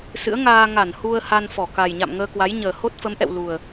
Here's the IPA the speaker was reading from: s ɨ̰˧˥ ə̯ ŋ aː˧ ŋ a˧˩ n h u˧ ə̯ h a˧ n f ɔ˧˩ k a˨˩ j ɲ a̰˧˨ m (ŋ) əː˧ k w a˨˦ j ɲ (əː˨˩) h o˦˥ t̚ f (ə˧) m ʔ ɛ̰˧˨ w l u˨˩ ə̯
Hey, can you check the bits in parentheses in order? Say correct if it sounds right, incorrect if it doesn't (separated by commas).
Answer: correct, correct, incorrect